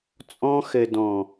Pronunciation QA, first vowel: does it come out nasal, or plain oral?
nasal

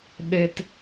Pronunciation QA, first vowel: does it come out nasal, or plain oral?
oral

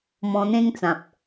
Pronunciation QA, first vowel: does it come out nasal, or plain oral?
nasal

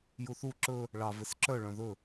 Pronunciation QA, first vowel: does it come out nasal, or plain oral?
oral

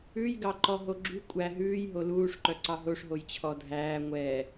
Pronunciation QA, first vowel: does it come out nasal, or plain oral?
oral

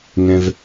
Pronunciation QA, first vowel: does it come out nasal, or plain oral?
nasal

